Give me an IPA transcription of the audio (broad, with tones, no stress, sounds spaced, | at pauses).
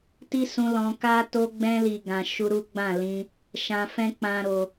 t i˦ s ũ˧ l ɔ̃˧ k a˦ t o˧ ɡ͡b ɛ̃˧ l i˨ ɡ ã˨ ʃ u˧ ɾ u˦ ɡ͡b ã˦˨ l ĩ˧ | ʃ ã˧ f ɛ̃˦ k͡p ã˦ ɾ o˧